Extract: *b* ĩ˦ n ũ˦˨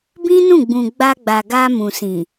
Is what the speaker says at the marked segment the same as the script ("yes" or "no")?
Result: yes